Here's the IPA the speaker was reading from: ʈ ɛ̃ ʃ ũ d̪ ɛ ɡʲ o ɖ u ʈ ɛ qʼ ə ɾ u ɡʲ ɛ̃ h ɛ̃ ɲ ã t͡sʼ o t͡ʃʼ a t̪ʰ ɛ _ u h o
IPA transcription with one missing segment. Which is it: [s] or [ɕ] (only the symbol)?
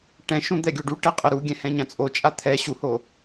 ɕ